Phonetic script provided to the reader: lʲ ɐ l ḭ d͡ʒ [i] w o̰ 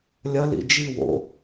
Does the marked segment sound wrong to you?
no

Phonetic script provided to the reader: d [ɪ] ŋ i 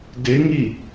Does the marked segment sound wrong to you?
no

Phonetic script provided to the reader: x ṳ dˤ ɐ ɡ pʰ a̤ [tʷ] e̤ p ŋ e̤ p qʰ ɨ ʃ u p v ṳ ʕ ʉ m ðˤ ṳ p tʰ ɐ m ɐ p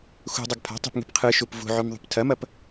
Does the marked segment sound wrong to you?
yes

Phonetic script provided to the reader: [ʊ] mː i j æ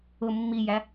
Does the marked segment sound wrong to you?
no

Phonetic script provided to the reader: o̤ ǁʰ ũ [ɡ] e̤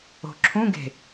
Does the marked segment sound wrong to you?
no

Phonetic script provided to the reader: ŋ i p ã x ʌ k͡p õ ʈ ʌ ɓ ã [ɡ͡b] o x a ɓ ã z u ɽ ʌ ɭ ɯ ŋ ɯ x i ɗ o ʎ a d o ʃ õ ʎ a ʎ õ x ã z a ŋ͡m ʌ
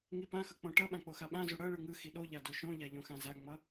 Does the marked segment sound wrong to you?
yes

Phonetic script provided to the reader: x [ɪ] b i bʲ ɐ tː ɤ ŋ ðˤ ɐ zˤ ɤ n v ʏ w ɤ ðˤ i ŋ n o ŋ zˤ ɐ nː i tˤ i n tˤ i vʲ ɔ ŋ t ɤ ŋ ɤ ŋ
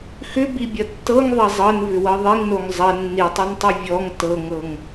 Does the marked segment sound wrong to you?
yes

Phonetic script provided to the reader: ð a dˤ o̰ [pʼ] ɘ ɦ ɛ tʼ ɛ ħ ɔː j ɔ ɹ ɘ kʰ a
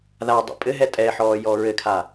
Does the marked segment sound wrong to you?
no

